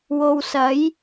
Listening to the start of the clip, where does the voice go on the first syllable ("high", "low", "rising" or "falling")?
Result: low